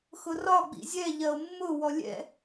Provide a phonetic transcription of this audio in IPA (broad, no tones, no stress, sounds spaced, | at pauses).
x ʊ r ɒ ɡ͡b ḭ zʲ ɛ ʎ ɜ o̯ mː ʊ w ɔ lʲ ɛ̰